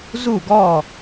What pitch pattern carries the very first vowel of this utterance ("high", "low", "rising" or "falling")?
falling